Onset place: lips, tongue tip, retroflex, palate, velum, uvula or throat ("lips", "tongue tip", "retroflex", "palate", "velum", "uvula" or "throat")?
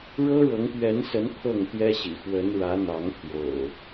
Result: retroflex